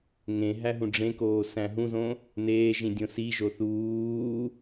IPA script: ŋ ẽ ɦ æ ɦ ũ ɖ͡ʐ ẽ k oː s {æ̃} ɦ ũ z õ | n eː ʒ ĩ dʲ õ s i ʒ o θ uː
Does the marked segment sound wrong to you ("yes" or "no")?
no